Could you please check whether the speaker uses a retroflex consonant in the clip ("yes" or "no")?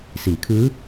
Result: no